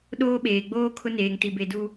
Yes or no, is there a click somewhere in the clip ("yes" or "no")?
no